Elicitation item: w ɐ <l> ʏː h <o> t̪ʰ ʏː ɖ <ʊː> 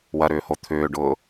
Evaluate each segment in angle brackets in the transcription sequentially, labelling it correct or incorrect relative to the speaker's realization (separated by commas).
incorrect, correct, correct